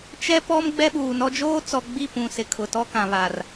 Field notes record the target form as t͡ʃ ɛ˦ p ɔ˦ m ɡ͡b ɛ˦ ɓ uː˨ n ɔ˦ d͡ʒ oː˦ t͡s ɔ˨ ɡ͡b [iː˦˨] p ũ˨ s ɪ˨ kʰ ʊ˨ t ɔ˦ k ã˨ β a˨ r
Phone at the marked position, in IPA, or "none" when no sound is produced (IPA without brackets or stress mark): i˦˨